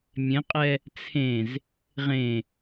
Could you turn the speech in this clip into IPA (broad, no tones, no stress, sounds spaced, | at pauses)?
mʲ ẽ qʼ ɛ | t͡sʰ ẽ z | ʁ ẽ